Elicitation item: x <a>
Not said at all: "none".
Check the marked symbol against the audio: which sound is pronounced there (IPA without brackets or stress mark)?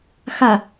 a